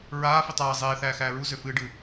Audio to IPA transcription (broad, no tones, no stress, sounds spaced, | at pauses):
ɹ aː f i tˤ aː zˤ eː θ æː x æː ɹ u z ø f ɨː ɖ ɨ